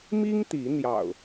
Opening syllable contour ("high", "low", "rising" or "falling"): high